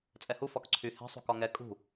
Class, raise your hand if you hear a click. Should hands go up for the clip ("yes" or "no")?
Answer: yes